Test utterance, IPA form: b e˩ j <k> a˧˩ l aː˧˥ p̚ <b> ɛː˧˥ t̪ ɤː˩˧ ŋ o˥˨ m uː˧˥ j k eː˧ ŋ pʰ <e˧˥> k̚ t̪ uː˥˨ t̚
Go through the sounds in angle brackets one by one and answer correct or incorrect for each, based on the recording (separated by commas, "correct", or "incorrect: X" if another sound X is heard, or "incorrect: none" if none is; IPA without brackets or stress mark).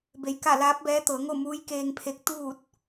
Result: correct, correct, correct